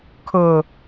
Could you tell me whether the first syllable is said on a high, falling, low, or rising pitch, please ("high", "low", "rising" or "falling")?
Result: low